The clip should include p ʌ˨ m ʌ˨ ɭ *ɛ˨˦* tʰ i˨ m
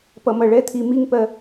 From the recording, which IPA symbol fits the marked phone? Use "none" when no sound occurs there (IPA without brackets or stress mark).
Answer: ɛ˨˦